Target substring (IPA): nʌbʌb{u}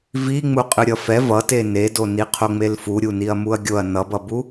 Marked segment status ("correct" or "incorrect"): correct